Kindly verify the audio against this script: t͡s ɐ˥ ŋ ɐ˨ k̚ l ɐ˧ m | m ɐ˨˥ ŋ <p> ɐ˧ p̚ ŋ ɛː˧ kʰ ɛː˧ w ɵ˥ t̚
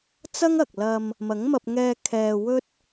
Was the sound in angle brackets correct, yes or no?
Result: no